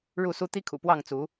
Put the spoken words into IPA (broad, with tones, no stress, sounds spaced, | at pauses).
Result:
ɻ u˥˨ s u˦ t̪ i˦ kʰ ṵ˨˩ p w ɑ˥˨ ŋ t͡s u˨˦